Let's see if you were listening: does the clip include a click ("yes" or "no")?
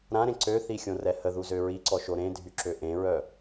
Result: yes